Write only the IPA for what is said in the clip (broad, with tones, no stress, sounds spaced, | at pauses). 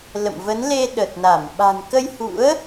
l ə̰˧˨ m v ə˨˦ n l e˧ ɗ ə˨˩ t̚ n a˧˩ m ɓ a̤˨˩ n k ə˧ j h ṵ˧˥ ə̯